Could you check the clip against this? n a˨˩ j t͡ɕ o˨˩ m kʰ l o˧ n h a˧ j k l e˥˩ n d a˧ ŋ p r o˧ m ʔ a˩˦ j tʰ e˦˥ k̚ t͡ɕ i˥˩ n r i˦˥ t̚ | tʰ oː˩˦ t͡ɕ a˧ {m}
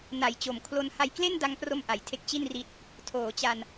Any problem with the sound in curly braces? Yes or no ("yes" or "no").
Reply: yes